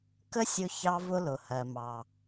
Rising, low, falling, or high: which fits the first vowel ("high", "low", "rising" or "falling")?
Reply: high